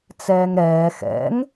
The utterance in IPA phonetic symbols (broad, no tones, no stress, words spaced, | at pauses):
t͡sɛːŋɾɛː xɛ̰ŋ